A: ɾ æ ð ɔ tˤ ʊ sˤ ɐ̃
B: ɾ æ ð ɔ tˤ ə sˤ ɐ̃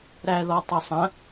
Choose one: B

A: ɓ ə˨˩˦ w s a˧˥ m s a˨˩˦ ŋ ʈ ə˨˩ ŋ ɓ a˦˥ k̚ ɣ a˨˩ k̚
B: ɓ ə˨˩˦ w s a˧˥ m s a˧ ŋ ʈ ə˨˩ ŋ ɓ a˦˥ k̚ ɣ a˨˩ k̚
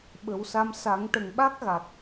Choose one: A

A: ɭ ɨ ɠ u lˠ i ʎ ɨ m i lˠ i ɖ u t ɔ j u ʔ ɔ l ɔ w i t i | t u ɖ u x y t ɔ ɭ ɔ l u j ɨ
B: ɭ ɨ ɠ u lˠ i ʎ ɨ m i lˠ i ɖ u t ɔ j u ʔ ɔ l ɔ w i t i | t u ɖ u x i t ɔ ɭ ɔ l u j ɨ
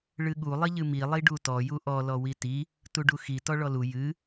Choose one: B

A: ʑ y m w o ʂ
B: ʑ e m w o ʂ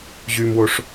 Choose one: A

